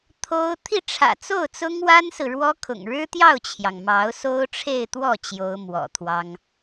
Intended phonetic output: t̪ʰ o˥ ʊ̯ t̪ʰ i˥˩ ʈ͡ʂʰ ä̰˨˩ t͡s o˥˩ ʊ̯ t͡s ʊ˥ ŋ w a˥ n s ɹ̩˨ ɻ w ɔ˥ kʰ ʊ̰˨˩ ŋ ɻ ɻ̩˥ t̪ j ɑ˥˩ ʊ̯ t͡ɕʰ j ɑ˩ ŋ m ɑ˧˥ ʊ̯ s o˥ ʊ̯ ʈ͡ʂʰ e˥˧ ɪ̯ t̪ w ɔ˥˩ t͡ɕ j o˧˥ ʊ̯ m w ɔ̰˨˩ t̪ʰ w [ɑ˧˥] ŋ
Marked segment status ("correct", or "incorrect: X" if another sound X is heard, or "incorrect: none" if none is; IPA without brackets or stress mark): incorrect: ɑ˥